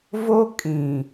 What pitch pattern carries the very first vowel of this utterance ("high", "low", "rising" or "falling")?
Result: high